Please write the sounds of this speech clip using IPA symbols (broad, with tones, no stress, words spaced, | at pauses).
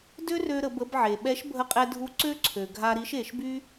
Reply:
dø˥rø˧ ɾə˩˧bə˧b ʕe˩ɓɛ˧˥ʃbʱə˧qʼɛ˧ dʱu˧˥ ǀø˥ǀʰø˩ɡʱa˧ɾi˧˥ʃ e˩˧ʃby˥